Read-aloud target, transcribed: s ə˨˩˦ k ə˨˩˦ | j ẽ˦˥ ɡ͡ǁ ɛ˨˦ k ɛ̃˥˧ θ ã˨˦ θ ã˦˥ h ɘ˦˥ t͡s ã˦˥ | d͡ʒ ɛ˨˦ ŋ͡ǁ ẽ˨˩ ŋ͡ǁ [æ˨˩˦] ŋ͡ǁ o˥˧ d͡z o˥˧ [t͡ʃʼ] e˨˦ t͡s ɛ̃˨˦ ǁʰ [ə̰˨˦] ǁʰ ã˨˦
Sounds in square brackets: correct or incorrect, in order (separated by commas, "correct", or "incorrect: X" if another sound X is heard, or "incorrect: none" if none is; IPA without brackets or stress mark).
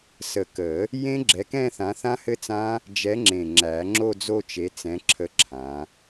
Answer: correct, incorrect: t͡ʃ, incorrect: ə˨˦